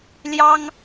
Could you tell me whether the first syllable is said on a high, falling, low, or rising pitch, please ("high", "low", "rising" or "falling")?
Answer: high